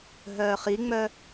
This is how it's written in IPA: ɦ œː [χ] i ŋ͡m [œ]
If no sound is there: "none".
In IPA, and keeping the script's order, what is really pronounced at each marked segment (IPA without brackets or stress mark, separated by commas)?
χ, œ